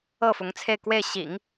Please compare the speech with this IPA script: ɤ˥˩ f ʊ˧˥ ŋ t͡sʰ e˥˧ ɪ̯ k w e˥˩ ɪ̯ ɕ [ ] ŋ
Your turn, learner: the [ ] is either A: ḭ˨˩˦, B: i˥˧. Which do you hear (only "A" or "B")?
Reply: A